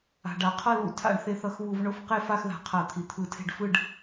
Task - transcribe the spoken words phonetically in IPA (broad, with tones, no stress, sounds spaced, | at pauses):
a̤˨˩ ɖ a˧˩˧ qʰ ʌ˥˨ l ṵ˧˩˧ tʰ a̰˧˩˧ ɳ θ e˨˩ θ ʌ˧˩˧ x β u˧˩˧ v ɳ o˥˨ f q e˥˨ f a˥˨ x ð a̤˨˩ qʰ a˧˩˧ t̪ʰ i˨˩ t̪ʰ ɯ˧˩˧ tʰ e̤˥˨ ɖ f ɯ˥˨ ɖ